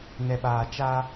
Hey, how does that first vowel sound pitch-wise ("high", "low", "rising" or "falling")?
low